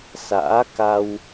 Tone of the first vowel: rising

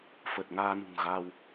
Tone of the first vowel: low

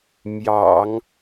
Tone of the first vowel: low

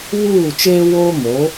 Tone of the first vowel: falling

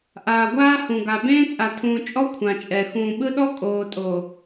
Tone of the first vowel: low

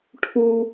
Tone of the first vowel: high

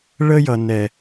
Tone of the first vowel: high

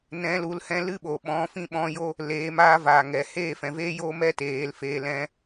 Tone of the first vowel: rising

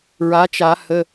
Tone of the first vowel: rising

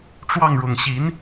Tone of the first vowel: falling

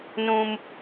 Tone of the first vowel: high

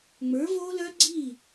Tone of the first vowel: rising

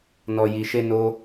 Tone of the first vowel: low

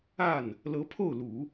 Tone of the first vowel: falling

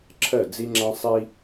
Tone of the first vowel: falling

